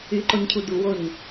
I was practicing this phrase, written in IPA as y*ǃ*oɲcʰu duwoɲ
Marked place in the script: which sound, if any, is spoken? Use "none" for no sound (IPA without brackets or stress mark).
ǃ